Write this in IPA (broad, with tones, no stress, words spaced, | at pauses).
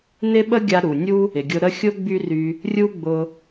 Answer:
nɪ˦ɓə˦ ɡʲa˧ ɾu˨nʲu˦ | ɪ˨ɡʲʊ˧ɾə˦ xʲʊ˦ ɡ͡by˦ry˧ | rʲu˦ɡ͡bʊ˧